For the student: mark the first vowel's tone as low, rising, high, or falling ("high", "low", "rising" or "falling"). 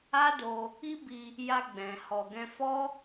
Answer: high